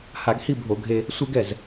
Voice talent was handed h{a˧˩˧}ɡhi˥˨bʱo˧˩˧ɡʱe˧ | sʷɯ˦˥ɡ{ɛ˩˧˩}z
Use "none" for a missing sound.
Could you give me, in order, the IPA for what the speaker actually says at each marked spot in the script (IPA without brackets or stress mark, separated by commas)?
a˧˩˧, ɛ˩˧˩